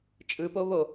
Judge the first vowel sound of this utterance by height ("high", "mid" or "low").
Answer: high